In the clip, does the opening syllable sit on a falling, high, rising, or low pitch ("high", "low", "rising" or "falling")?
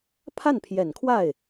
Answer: falling